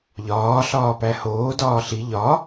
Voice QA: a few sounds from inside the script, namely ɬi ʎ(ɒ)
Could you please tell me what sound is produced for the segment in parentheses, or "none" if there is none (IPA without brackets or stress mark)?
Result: ɒ